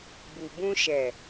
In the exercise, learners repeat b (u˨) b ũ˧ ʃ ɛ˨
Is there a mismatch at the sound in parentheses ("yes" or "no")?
no